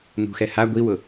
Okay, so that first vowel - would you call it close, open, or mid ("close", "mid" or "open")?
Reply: close